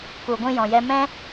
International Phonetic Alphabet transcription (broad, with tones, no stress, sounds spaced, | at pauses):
k u˨ ɡʷ ĩ˧ j ɔ̃˨ j ɛ˧ m ɛ̃˦